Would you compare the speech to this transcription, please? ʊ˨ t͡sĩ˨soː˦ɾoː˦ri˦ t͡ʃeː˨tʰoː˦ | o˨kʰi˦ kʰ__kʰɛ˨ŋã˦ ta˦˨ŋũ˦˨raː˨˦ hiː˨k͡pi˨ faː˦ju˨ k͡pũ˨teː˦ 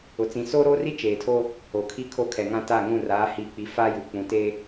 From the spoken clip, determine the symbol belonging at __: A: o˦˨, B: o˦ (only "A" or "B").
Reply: B